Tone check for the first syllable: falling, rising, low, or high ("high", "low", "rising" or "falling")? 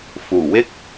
low